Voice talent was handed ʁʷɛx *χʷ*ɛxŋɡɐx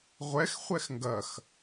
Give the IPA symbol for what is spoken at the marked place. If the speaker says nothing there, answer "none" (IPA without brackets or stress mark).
χʷ